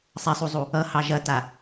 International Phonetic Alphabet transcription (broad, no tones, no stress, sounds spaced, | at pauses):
sˤ ɛ sˤ u zˤ u | ʌ h ɑ ʒ ɐ t a